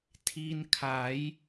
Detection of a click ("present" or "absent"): absent